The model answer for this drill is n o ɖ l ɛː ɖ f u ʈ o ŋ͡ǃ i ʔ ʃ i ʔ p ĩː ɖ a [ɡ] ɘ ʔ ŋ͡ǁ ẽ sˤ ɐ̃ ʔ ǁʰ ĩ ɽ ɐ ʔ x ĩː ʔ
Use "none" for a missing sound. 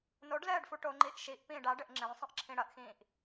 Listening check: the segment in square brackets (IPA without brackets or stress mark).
ɖ